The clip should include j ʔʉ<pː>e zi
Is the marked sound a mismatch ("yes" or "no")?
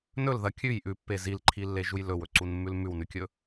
no